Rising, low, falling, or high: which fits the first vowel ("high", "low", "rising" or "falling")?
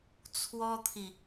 high